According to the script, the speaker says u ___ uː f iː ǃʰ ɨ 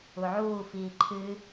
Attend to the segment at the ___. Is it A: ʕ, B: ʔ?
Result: A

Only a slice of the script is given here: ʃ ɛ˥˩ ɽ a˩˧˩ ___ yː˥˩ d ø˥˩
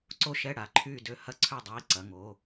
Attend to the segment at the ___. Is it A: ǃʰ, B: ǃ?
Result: A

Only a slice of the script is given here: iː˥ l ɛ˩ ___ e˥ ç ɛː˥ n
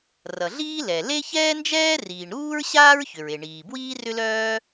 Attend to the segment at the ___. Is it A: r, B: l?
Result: B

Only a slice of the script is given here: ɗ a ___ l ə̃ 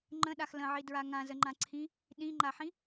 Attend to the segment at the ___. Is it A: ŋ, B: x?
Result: B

